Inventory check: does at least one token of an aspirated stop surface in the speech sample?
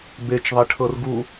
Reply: yes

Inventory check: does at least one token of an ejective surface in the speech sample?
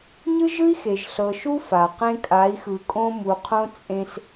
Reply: yes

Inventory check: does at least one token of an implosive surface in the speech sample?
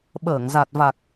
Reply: yes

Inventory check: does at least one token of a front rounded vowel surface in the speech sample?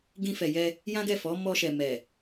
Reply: no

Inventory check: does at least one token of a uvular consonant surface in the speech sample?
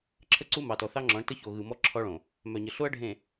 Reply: no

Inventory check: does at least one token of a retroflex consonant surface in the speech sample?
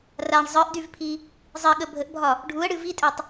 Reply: yes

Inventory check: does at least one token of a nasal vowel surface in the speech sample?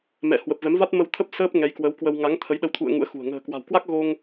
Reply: no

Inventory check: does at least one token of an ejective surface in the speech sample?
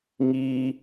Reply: no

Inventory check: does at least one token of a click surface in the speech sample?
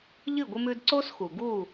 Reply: yes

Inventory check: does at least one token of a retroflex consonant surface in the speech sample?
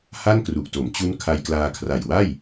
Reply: no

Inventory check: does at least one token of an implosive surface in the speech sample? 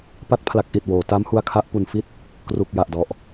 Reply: no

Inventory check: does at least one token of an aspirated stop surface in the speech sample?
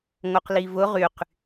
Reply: no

